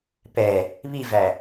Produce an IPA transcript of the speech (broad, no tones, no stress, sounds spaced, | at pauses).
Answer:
p ɛ | β i v æ